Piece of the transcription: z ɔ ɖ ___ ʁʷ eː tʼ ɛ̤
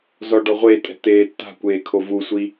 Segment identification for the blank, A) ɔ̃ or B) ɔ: B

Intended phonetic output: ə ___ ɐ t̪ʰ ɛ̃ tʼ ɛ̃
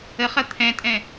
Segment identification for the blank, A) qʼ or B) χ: B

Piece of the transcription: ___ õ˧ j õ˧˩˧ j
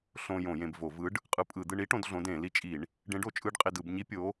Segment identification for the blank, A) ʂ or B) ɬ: B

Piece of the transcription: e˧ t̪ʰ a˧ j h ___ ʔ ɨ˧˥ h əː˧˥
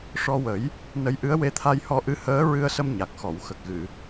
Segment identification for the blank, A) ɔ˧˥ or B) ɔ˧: A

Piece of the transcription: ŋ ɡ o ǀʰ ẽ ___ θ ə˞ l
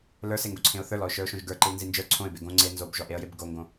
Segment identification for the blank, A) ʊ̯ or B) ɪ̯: A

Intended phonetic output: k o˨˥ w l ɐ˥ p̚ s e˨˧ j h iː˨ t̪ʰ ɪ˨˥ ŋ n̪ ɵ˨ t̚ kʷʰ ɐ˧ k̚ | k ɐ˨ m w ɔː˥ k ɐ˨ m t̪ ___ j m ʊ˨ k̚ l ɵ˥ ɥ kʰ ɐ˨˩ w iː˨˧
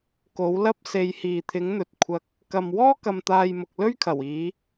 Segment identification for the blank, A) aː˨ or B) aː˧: A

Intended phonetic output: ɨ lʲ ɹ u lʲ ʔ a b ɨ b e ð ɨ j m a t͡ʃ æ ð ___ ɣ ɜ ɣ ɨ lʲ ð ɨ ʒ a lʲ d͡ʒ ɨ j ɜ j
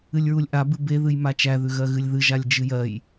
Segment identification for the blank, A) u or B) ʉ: B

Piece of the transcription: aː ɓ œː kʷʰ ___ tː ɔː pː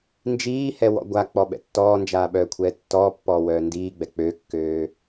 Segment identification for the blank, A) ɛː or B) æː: A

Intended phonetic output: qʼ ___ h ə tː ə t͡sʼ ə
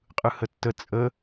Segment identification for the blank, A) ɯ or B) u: A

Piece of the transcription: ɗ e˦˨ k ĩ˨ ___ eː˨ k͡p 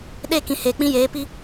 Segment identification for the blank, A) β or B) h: B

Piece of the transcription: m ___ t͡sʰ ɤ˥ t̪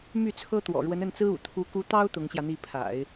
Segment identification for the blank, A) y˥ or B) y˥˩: B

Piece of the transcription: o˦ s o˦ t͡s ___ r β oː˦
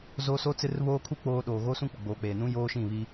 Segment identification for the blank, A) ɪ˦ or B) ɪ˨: A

